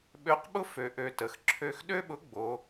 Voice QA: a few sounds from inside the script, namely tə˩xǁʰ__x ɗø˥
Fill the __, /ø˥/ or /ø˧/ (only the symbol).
ø˧